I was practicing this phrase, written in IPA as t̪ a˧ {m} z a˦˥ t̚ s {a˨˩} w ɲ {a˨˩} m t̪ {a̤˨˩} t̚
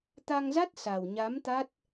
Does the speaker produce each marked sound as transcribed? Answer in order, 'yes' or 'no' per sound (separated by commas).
no, yes, no, no